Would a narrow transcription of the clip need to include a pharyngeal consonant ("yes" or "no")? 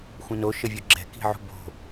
yes